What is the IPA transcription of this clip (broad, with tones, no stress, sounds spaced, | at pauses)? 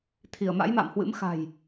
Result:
t̪ʰ i˧˩ ə̯ m a̰˧˥ j m a̰˧˨ m h w ɨ̰˧˥ m x a̤˨˩ j